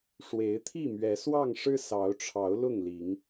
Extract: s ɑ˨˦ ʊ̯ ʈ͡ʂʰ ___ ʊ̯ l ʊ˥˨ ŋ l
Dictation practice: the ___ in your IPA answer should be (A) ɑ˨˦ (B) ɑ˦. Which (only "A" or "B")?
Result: A